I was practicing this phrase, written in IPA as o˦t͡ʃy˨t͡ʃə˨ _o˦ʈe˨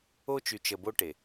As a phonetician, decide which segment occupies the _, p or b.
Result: b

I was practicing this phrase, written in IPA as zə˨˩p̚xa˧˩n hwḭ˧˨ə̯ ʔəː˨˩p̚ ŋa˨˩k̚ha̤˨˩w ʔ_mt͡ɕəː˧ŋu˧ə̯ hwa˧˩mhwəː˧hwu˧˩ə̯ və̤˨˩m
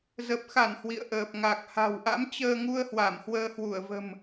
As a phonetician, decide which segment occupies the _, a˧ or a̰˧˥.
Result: a̰˧˥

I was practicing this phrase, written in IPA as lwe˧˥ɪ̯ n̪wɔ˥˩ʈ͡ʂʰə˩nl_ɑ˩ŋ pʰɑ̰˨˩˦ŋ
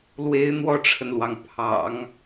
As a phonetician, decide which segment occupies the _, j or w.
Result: w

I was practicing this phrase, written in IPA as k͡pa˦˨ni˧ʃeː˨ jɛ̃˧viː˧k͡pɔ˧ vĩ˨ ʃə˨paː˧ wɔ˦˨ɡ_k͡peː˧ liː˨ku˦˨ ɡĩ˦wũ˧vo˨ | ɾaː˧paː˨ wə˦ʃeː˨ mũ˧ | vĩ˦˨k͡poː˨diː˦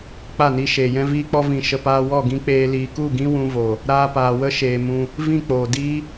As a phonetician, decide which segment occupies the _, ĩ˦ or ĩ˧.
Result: ĩ˧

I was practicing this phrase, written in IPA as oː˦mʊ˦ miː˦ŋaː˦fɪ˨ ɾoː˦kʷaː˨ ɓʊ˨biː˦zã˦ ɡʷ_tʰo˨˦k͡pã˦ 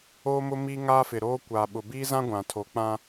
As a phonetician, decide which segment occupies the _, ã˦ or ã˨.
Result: ã˨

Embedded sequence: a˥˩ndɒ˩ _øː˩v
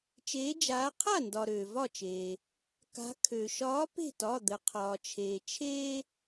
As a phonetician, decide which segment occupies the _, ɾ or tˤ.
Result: ɾ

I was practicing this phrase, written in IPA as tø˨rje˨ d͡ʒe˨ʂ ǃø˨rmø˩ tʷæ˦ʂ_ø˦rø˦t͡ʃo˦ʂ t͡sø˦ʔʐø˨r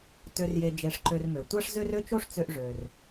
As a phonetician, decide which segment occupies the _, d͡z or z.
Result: z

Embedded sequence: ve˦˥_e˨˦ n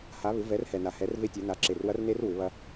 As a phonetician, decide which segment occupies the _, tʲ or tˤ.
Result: tʲ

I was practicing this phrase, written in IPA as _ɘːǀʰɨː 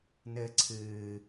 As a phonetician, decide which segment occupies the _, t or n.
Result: n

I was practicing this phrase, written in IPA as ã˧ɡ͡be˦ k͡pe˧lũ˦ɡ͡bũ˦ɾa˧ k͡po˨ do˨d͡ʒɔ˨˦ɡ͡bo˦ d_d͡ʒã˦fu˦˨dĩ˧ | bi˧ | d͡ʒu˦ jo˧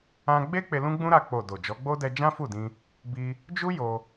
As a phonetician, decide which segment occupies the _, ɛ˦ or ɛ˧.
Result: ɛ˧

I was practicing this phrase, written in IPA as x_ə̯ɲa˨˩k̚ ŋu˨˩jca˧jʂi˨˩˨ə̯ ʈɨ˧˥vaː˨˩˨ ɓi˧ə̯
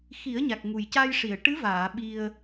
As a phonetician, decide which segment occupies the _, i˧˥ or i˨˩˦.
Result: i˨˩˦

